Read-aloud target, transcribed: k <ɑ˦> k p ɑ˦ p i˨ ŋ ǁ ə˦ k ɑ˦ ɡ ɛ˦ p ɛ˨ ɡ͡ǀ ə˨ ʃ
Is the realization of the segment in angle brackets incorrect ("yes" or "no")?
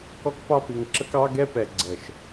yes